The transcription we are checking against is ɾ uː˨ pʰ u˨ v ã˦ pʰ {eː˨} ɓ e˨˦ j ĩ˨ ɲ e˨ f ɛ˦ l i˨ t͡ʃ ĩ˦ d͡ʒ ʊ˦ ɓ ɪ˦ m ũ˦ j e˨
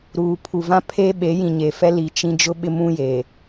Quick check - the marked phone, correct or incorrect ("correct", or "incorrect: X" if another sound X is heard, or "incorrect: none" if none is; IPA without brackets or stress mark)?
incorrect: eː˦